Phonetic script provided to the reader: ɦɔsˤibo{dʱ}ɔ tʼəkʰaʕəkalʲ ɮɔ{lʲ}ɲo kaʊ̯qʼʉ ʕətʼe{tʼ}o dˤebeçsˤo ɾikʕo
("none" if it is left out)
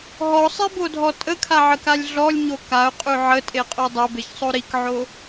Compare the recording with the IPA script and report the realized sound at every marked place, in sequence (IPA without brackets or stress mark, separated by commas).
dʱ, lʲ, qʼ